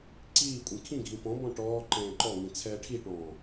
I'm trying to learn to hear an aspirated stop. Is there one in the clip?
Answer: yes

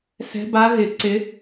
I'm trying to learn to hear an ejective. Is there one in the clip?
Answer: no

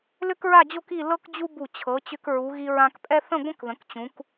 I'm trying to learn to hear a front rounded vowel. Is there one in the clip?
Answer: yes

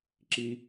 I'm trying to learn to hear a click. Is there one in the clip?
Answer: yes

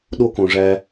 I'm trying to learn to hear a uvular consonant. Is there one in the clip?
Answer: no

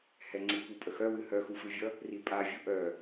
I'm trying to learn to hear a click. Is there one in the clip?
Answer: yes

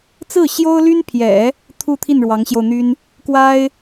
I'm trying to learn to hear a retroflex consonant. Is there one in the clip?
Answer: yes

